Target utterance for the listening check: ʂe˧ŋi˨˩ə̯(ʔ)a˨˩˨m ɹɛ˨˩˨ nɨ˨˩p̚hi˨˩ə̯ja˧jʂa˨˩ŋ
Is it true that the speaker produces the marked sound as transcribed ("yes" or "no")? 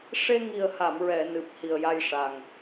no